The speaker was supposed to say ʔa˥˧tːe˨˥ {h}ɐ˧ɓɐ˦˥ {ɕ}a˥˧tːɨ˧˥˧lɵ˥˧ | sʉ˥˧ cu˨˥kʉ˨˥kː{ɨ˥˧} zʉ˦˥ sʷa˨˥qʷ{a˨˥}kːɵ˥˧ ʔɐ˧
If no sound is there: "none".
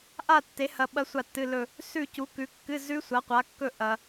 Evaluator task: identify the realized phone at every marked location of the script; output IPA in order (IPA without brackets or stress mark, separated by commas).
h, sʷ, ɨ˧˥˧, a˨˥